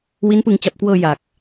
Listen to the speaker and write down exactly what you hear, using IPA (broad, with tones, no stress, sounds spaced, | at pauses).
w i˦˥ n p ɯ˧ ŋ t͡ɕ a˨˩ p̚ k w ɤː˧ j a˨˩ k̚